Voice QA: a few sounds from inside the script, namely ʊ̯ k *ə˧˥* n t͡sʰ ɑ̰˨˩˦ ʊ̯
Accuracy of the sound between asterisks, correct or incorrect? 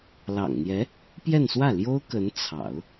correct